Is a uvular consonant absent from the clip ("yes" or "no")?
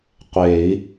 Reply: no